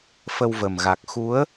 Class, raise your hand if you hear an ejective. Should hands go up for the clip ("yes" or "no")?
no